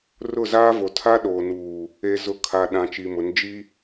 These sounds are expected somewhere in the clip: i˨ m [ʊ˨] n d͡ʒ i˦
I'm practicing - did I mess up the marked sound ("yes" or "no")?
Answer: yes